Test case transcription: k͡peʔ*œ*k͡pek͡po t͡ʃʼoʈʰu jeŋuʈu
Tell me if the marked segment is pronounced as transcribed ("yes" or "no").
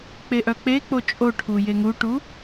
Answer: yes